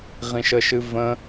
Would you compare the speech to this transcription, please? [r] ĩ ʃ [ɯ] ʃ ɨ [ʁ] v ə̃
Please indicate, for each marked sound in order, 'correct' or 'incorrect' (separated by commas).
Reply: incorrect, incorrect, incorrect